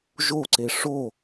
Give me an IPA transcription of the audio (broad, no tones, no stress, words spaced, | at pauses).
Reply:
ʒoǀe ʂo